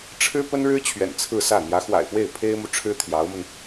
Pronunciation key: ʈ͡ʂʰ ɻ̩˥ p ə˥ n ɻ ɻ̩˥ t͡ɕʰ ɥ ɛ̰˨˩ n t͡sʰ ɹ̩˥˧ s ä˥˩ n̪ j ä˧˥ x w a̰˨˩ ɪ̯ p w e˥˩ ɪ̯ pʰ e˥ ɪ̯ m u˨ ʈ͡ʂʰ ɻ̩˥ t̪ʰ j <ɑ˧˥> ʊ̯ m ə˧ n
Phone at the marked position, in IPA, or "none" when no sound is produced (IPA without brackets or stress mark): ɑ˧˥